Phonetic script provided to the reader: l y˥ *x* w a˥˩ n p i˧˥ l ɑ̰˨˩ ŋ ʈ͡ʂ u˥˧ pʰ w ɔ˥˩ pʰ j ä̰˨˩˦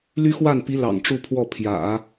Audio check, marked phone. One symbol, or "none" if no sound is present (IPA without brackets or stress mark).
x